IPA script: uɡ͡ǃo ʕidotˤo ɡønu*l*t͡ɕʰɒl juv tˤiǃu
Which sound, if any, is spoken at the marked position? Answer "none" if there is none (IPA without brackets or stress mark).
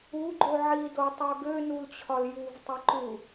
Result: l